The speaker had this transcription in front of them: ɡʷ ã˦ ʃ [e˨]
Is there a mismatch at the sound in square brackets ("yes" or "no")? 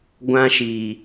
yes